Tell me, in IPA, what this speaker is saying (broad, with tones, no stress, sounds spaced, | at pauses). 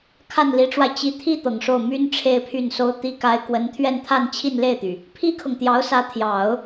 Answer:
kʰ a˥˩ n l i˧˥ ʈ͡ʂ w a˧ ɪ̯ t͡ɕ i˧˥ t̪ʰ i˥ t̪ ɤ˨˩ ŋ ʂ o˥˩ ʊ̯ m y˥ n ʈ͡ʂʰ e˥ ɪ̯ pʰ y˥˩ n s o˥ ʊ̯ t̪ i˥ k a˥ ɪ̯ k w ə˧˥ n t̪ʰ ɥ ɛ˥˧ n t̪ʰ a˥˧ n t͡ɕʰ i˥˧ n l e˥˩ ɪ̯ t̪ y˩ | pʰ i˥ kʰ ɤ˨ ŋ t̪ j ɑ˧˥ ʊ̯ s ä˧˥ t̪ʰ j ɑ˨˩˦ ʊ̯